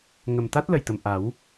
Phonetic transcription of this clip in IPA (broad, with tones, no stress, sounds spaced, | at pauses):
ŋ ə˨˩ m t̪ a˦˥ t̚ l ə˨˩ j t̪ ə˨˩ m ʔ a˨˩˦ w